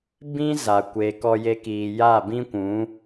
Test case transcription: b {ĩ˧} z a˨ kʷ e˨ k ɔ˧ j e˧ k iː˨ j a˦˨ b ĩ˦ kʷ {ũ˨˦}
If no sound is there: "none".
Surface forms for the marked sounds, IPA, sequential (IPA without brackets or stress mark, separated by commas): ĩ˦, ũ˨˦